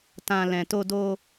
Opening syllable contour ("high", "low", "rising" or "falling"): low